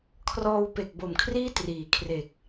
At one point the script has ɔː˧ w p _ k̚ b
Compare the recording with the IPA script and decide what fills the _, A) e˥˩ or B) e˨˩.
B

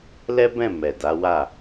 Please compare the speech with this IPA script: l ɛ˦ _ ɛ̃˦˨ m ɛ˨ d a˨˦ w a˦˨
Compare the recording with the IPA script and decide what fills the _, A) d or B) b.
B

